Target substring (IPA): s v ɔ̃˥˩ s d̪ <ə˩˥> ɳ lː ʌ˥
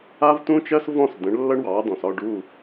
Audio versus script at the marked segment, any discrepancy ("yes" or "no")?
yes